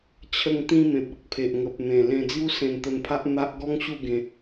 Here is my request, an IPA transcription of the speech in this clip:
t͡ɕʰ ə˧ ŋ t̪ ĩ˧ m ẽ˨ p̚ ə˨ k̚ pʰ e˨ ʔ ŋ ə˨ p̚ n̪ ẽ˨˩ l ẽ˧ d͡z j u˦ s ẽ˧ n t̪ ə˧ n pʰ a˦ ʔ n̪ a˦ ʔ ɡ ɔ˦ ŋ ɕ u˥˧ ɡ ẽ˧

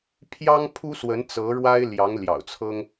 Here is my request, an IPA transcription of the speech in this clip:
pʰ j ɑ˥ ŋ pʰ u˥ s w ə˧˥ n t͡s ɤ˧˥ ɻ w a˥ ɪ̯ l j ɑ˧˥ ŋ l j ɑ̰˨˩ ʊ̯ t͡sʰ ɤ˥ ŋ

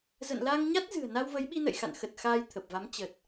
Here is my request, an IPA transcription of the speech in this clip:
z ə̰˧˨ n l a˧ ŋ ɲ a˦˥ t̚ z ɨ̤˨˩ ə̯ n a˧ w v ə˨˦ j ɓ i˧ n ə̰˧˨ j x a̰˧˨ n x ə˨˩ t̚ x aː˧ j t̪ʰ ə˨˩ p̚ v a˨˦ m t͡ɕ ə˨˩ t̚

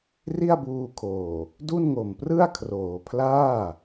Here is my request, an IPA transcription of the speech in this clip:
r i˥˩ a̯ b uː˧ kʰ oː˨˩ | d u˥˩ n ŋ o˨˩ m p r ɯ˥˩ a̯ kʰ r oː˩˦ pʰ l aː˥˩

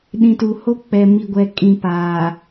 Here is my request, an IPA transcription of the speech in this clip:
ɗ ĩ˨ t u˨ h o˦ k͡p ɛ˨ m i˨ ɡʷ ɛ˨ kʼ ĩ˨ p aː˨

